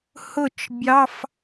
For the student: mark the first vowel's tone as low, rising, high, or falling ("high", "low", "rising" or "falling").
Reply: falling